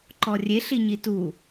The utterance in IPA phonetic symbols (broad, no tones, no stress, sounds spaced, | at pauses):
ǃ ɔ rʲ e ɬ i ɲ i t u